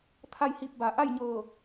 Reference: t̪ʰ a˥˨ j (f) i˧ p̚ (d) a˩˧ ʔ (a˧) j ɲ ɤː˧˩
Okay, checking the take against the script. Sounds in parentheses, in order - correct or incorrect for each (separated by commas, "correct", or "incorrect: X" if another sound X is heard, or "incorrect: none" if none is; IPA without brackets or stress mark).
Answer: incorrect: h, incorrect: b, incorrect: a˥˨